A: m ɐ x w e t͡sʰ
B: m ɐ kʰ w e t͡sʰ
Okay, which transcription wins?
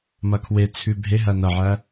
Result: B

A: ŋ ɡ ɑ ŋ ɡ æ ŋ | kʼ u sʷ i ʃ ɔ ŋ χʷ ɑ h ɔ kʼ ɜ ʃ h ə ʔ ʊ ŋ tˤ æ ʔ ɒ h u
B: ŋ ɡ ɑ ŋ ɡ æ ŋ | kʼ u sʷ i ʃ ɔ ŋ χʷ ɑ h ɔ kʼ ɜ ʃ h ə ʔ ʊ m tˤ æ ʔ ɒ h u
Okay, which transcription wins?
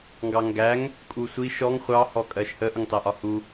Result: A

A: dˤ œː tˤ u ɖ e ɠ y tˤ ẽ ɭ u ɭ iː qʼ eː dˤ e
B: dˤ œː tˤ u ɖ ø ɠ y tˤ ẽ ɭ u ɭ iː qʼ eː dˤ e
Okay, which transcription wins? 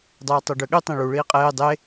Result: B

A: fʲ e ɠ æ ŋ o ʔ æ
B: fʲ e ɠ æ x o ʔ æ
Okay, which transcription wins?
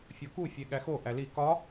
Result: B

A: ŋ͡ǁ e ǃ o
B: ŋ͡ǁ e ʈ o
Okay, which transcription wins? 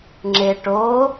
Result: B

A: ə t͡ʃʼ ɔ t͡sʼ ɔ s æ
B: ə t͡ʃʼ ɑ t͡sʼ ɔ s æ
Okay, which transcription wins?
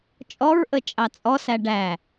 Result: B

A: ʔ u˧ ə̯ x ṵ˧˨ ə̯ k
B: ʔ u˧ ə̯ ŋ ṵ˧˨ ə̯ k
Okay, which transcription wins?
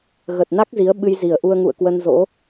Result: B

